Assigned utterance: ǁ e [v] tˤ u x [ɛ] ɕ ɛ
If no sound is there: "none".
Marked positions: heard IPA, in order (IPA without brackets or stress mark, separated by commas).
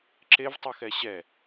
v, ɛ